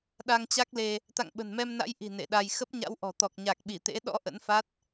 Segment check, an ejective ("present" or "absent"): absent